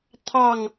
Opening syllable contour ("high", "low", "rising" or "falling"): falling